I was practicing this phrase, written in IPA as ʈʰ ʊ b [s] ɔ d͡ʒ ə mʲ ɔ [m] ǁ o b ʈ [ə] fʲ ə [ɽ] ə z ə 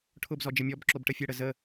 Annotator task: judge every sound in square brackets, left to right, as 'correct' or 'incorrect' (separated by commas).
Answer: incorrect, incorrect, correct, correct